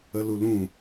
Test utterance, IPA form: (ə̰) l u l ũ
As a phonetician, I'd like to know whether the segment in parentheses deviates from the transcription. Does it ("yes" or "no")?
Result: yes